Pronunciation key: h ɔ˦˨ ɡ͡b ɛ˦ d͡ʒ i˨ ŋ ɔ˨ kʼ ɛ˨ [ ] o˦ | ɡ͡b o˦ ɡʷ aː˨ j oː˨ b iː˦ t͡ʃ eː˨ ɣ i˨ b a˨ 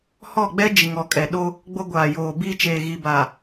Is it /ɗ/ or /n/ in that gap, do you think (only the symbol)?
ɗ